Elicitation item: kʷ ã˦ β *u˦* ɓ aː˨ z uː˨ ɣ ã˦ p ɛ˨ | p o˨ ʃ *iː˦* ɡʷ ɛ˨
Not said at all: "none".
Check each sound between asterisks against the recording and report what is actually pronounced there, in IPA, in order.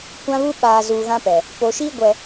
u˦, iː˦

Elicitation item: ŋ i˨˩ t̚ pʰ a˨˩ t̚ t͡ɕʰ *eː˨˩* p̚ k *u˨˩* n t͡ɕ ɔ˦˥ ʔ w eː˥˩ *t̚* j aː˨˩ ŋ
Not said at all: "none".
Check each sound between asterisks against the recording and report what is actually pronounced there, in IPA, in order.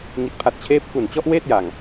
eː˦˥, u˨˩, t̚

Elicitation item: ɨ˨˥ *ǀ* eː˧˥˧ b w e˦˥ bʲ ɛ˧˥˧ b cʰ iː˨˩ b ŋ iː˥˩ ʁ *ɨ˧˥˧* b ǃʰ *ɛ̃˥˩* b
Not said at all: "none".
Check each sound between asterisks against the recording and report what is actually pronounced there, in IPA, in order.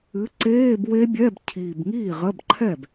ǀ, ə˧˥˧, ɛ˥˩

